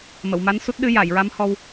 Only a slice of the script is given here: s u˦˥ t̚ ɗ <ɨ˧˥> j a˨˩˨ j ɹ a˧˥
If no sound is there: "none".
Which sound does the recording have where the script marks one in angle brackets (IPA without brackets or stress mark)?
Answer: ɨ˧˥